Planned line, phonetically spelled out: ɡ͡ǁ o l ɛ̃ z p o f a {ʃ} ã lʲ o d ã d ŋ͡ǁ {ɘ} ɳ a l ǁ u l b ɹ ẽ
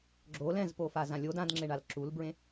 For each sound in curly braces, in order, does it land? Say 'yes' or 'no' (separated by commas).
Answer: no, no